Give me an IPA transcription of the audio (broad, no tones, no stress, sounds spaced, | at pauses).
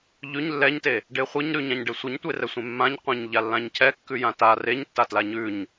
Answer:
ʎ ʉ ɲ lː ɛ ɲ t e | ɖ e χʷ ɨ ɲ ɾ ʉ ɲ ã ɲ ɖ e sʷ ɨ ɲ tʷ e r ɛ sʷ ẽ mː ã ɲ qʷ ẽ ɲ ʎ a lː ã ɲ cʰ ɛ kː ʉ j ã t a r e ɲ tː a t l a ɲ ʉ ɲ